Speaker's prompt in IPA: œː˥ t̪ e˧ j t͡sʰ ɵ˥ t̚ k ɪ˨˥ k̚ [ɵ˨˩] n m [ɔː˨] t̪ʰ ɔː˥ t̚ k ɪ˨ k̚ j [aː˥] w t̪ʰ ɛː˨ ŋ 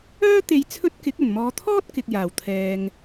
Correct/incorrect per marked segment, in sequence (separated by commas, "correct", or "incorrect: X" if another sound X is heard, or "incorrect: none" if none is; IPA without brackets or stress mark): correct, incorrect: ɔː˨˧, incorrect: aː˨˩